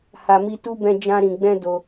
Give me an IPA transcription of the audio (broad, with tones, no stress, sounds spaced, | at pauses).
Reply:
h a˨ m i˧ t u˧ b ɛ̃˧ d͡ʒ ã˧ ɾ ĩ˨ ɡ͡b ɛ̃˧ d o˧